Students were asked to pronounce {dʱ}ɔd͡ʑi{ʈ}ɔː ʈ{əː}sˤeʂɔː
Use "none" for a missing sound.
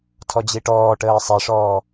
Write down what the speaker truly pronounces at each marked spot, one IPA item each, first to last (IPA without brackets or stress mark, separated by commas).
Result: tʰ, ʈ, əː